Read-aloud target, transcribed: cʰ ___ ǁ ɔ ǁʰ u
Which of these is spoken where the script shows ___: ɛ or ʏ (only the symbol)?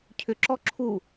ʏ